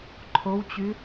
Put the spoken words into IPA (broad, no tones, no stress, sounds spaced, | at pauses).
ǃʰ o w t͡ɕ y